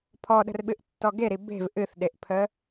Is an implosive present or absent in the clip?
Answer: present